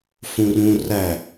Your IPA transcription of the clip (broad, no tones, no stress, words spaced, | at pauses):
fũrũ ræ